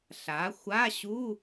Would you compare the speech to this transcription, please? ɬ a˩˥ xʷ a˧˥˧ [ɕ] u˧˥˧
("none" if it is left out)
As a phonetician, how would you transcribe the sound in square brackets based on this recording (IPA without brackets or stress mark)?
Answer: ɕ